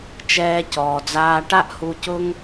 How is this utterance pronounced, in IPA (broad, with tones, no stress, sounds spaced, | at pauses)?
t͡ʃ ɛː˧ c ɔː˨ d͡z aː˧ ʈ a˦ ʔ h u˧ c ʊ˦ ŋ